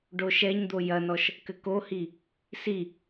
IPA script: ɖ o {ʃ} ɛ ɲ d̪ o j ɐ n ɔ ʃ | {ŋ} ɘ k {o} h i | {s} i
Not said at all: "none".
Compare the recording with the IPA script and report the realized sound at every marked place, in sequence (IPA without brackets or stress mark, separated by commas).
ʃ, k, o, s